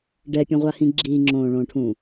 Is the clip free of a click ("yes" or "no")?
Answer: no